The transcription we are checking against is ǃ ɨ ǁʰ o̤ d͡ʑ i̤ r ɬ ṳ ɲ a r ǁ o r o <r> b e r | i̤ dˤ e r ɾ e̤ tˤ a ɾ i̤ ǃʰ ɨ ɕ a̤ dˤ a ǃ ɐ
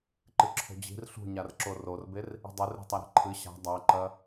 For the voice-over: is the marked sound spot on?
yes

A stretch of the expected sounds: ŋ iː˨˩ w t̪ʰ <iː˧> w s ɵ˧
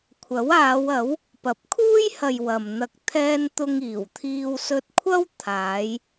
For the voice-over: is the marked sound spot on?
yes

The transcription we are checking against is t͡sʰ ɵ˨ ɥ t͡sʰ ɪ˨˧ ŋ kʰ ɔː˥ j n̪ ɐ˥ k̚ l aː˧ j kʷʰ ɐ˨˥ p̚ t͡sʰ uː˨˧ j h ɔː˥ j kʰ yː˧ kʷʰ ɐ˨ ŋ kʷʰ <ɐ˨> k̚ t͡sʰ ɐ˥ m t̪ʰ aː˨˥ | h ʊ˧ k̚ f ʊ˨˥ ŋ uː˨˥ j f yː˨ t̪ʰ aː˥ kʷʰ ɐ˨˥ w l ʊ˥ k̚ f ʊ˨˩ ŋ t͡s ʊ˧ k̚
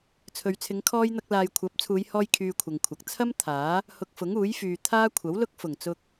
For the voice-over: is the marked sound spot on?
no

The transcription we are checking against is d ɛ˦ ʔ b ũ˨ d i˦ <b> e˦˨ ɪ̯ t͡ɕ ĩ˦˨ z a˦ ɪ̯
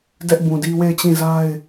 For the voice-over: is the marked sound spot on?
no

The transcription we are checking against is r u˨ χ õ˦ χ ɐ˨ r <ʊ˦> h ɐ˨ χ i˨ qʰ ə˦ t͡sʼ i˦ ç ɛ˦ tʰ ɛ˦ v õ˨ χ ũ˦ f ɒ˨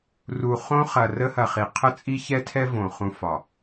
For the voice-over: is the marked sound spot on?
no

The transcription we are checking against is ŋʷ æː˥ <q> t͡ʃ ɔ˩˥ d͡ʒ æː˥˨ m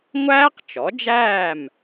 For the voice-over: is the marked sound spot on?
yes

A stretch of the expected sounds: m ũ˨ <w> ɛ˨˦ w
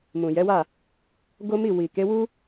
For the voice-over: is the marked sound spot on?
no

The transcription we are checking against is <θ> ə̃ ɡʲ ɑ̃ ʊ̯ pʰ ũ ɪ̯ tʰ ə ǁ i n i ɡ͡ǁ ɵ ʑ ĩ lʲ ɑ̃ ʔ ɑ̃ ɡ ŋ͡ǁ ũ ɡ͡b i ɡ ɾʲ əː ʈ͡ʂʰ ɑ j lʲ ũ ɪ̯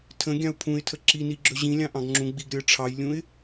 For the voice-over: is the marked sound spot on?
no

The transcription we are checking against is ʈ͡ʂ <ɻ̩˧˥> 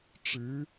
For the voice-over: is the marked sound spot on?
yes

